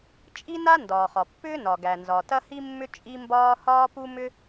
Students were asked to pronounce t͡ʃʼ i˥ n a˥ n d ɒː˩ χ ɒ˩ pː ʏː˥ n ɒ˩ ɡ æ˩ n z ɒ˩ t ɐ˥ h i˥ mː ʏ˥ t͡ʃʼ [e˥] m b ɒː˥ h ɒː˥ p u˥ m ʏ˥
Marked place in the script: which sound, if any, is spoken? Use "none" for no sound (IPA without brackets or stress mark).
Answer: i˥